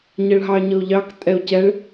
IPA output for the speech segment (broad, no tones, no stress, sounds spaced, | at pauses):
ɲ ɛ ɭ ɦ ɑ ɲ ɤ o̯ ʎ ɑ k tʼ ɛ o̯ c ɛ ɭ